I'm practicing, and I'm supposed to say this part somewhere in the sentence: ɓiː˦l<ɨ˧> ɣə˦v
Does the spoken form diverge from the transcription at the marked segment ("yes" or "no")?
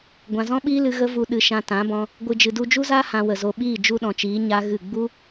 no